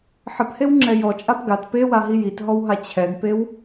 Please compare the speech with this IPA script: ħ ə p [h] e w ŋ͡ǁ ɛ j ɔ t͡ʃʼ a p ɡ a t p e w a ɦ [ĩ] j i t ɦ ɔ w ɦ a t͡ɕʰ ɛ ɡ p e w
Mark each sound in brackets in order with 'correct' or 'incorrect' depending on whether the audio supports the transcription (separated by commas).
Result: correct, incorrect